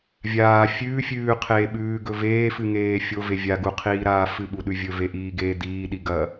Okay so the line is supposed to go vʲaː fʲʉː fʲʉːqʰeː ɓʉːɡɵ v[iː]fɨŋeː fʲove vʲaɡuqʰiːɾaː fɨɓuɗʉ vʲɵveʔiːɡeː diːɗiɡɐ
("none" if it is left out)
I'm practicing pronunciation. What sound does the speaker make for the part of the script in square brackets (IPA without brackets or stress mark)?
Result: eː